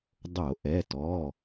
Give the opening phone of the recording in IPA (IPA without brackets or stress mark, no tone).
dˤ